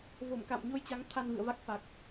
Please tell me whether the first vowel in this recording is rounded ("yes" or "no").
yes